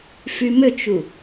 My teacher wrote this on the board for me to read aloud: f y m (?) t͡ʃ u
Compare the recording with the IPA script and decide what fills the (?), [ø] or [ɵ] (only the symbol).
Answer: ø